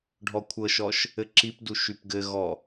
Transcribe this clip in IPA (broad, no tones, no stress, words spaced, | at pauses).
ɖʱɔkʷʰɤʃɔʃ | ɘǁipdu ʃypɡɘɣɔ